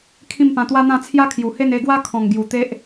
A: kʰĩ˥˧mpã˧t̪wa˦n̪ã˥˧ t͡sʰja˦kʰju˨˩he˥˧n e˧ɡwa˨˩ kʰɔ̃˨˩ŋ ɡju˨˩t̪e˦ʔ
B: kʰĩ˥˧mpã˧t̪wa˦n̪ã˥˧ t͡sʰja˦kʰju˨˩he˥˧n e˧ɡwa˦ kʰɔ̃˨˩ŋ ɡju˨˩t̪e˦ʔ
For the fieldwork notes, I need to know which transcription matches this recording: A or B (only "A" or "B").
B